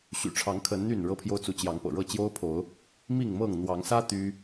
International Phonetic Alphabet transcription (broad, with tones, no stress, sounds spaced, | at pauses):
ɕ y̰˨˩ ʈ͡ʂʰ ɑ˨˦ ŋ kʰ ə˨˦ n n̪ y˥˨ n ɻ ɤ˦ pʰ j o˦ ʊ̯ t͡s u˨˦ t͡ɕ j ɑ˨˦ ŋ p ɤ̰˨˩ ɻ ɤ˥˨ t͡ɕ j o˦ ʊ̯ pʰ o˨˦ ʊ̯ | m i˥˨ ŋ m ɤ˥˨ ŋ n̪ w ɑ˨˦ ŋ s ä˦ t̪ y˦